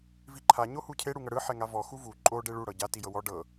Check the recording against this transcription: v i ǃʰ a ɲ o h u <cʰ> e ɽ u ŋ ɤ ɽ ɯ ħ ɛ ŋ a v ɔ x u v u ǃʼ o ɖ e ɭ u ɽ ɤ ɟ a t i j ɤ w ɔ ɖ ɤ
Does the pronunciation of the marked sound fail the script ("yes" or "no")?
no